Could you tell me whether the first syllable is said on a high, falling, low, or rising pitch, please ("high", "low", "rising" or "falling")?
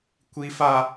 high